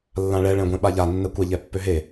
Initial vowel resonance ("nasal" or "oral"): nasal